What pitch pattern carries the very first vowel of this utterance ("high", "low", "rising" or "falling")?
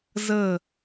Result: falling